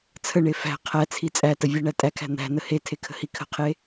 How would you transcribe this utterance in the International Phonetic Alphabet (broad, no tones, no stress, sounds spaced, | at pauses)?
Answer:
t͡sʰ ə ɳ e f æ̤ qʰ æ t͡sʰ i t͡sʼ æ t ə vʲ e ɳ æ tʼ æ kʰ æ̤ n̪ æ̤ n ə h e tʰ e kʰ ə̤ h i kʰ ə̤ qʰ e